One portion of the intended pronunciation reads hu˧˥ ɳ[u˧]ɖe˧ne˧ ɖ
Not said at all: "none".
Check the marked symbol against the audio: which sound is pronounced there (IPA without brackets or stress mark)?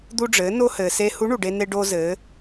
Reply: u˩